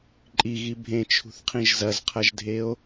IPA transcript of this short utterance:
ǃʼ i ɣ i bʱ ẽ t͡ʃʰ ṳ θ qʰ ĩ ʒ z ɐ z qʰ ɐ ʒ dʱ e o̯

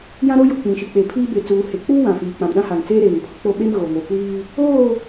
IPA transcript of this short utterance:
j ã˦ ɾ o˦ j ʊ˨ k͡p ĩ˨ ʃ i˨ k͡p e˨ pʰ iː˦ b e˨ t͡s uː˨ h e˨ k͡p uː˦ w ã˨ f iː˨ k͡p ã˨ m ɗ ã˦ h a˨ ŋ t͡s eː˦ ɾ eː˨ ŋ pʰ ʊ˨ k͡p o˦ ɓ e˦ m ɣ o˨ ŋ o˨ kʷ iː˦ | oː˦˨

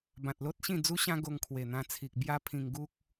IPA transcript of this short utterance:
b ã˨ t̚ l o˦ t̚ ɕ ĩ˥˧ d͡z u˦ ɕ ã˦ ɡ o˧ ŋ kʰ w e˨˩ n̪ ã˧ t͡sʰ i˨ k̚ b j a˦ pʰ ĩ˧ ŋ ɡ u˦ k̚

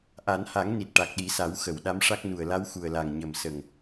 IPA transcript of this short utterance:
ʔ a˨˩˦ n h a˨˩˦ ŋ n i˨˩ t̚ ʈ a˨˩ k̚ ɗ i˨˩˦ s a˨˩˦ w x ə˨˩˨ w ɗ a˧˥ m ʂ a˦˥ k̚ n u˨˩ ə̯ l a˧˥ w x u˨˩ ə̯ l a˨˩ ŋ ɲ ə˨˩ m s ə˨˩ ŋ

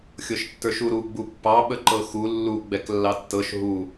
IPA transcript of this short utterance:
xʲ ɤ ʃ tː ə˞ ʃ u ɾ u ɡ͡b u pː ɑ ɓ ə ǃ ɤ x u lː u ɡ͡b ɛ k lː ɑ tː ɤ ʃ ɦ u

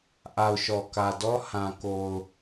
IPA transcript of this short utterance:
ʔ a˨ ʊ̯ ʃ ɔ˨ k ä˨ d ɔ˦ h ã˨ k o˨ ʊ̯

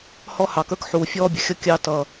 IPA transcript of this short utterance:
h ɔ˦ h ɑ˨ k ə˞˦ k ħ u˨ fʲ ɔː˦ bʲ ə˨ xʲ ʌ˦ kʲ ɑ˦ t ʌ˦

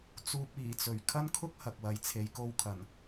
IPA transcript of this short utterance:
t͡s uː˧ p̚ iː˨˩ t͡s ɵ˨˩ ɥ kʰ ɐ˥ n kʰ ʊ˥ k̚ h ɐ˨ k̚ w ɐ˨ j t͡sʰ e˨˧ j k o˧ w kʰ ɐ˨˩ n

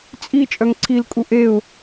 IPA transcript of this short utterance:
t͡sʼ i t͡ʃʼ œ ŋ ǀʰ i l kʼ u ʔ e ʊ̯

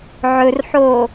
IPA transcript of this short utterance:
ʕ ɵ r ħ oː

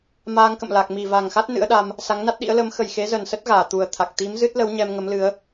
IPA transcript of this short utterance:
m aː˧ ŋ k ə̰˧˨ m l a˨˩ k̚ m i˧˩ v a˨˩ ŋ x a˦˥ t̚ n ɨ̰˧˥ ə̯ ɗ a˧ m | s a˨˦ ŋ n a˦˥ t̚ ɗ ḭ˧˥ ə̯ l ə˨˦ m x ə˨˩ j x e˨˦ z ə˨˩ n s ə˦˥ t̚ ɣ aː˧˩ t̪ u˨˩ ə̯ t̪ʰ a˨˩ k̚ t̪ i˨˦ m z ɨ˦˥ t̚ l ə˨˦ w ɲ ɛ˧ m ŋ ə˨˦ m l ɨ˨˦ ə̯

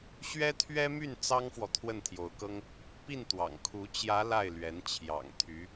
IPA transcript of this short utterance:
ɕ ɥ ɛ˥ t̪ʰ ɥ ɛ˥ m y˥˩ n t͡s ɑ˥ ŋ f w ɔ˨ t̪ʰ w ə˥˩ n t̪ʰ j o˧˥ ʊ̯ k ɤ˥ ŋ | p i˥˩ n t̪ w ɑ̰˨˩ ŋ kʰ u˧˥ t͡ɕ j ä˧˥ l a˥˩ ɪ̯ l ɥ ɛ˧˥ n t͡ɕʰ j ɑ̰˨˩ ŋ t̪ʰ y˧˥

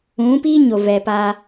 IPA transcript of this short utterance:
ũ˨˦ p i˦ ɲ o˨ v ɛ˨ p a˦

